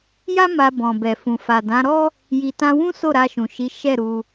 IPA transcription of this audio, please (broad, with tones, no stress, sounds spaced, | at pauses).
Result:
j a˦ m a˧ b ɔ̃˨ b ɛ˨ f ũ˨ f a˨ d ã˨˦ ɾ ɔ˦ | j i˨ t ã˧ w ũ˦ s o˦˨ ɾ a˧ ʃ ũ˨ ʃ i˨˦ ʃ ɛ˦˨ ɾ u˧